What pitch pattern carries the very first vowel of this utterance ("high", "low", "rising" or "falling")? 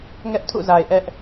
high